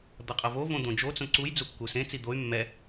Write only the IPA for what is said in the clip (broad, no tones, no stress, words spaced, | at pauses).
d̪ʌqʼʌvo võd̪õd͡ʒo t͡sõǀuj d͡zukːusẽ t͡sid̪oy̯ mːɛ